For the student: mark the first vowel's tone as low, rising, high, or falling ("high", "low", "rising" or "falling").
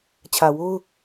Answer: low